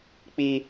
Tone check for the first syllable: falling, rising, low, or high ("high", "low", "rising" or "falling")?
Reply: low